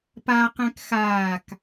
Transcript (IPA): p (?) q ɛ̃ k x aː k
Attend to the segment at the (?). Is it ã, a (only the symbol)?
a